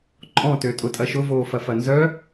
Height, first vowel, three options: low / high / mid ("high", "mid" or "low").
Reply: mid